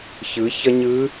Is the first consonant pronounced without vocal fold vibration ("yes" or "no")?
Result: yes